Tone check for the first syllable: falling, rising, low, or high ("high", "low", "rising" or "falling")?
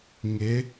rising